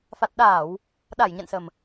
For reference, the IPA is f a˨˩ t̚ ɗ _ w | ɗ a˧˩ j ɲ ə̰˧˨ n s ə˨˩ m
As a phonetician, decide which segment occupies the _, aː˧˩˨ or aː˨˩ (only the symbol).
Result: aː˧˩˨